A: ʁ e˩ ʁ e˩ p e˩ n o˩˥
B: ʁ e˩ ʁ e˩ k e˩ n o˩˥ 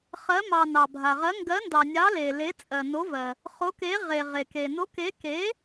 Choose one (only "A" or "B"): B